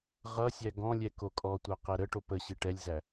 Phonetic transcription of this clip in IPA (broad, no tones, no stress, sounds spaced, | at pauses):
ʁ ʌ sʲ æ ɡ ɔ̃ lʲ ɛ k o kʼ ɔ tʷ a q ɛ ɾ ə ʈ o p ə ɕ i ʈ ɛ lʲ z æ